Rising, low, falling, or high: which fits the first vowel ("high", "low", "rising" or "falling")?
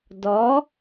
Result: rising